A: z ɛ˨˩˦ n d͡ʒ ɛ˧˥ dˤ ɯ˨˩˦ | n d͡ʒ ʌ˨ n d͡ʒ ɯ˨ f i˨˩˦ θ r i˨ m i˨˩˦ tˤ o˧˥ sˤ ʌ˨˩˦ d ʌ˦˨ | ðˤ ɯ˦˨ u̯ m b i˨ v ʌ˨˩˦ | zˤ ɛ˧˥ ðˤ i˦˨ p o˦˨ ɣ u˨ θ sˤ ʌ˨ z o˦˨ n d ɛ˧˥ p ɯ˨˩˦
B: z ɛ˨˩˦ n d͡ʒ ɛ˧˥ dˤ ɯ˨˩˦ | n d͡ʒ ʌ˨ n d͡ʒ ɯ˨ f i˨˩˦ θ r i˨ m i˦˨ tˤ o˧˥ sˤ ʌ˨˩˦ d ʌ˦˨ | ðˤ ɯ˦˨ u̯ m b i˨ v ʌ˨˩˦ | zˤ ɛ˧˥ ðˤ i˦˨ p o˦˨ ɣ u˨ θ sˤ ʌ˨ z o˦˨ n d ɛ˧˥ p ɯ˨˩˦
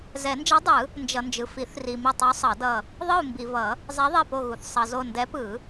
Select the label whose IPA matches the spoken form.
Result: B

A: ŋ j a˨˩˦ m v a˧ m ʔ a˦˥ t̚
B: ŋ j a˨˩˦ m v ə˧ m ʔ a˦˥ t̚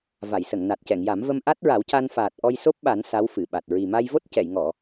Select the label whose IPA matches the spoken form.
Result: B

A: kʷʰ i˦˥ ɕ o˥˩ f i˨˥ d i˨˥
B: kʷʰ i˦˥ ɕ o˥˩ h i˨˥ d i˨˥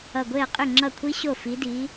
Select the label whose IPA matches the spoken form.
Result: A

